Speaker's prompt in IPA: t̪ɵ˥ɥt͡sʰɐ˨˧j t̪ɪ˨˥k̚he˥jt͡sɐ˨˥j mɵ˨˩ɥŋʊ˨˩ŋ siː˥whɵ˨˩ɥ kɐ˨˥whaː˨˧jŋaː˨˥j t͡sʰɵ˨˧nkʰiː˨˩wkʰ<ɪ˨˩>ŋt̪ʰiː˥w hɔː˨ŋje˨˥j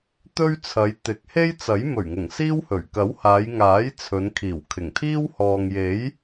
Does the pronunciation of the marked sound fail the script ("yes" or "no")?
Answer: no